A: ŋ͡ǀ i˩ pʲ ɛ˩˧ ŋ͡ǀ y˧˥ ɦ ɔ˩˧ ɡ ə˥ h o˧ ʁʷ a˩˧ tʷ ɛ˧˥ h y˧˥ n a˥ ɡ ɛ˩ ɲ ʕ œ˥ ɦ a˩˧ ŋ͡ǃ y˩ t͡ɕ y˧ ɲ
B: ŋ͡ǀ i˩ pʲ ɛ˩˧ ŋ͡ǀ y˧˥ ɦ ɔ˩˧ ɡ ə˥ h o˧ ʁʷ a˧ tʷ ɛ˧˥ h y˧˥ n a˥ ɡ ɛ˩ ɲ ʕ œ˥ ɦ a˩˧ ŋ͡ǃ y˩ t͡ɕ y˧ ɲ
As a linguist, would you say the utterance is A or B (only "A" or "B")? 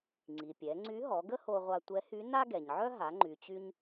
B